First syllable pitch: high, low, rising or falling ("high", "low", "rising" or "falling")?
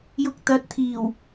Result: low